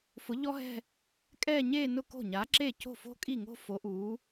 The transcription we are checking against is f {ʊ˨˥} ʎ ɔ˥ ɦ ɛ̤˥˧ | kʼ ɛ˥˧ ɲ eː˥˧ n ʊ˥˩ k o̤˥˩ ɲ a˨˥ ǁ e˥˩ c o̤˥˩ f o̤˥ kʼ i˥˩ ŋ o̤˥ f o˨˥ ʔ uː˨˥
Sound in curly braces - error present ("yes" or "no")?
no